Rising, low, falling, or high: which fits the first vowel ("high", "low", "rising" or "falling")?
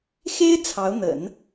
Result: high